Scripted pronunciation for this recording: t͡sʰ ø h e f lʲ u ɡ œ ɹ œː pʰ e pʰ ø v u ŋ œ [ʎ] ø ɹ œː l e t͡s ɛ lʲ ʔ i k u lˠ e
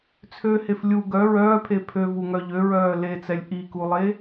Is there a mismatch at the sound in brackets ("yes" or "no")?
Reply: no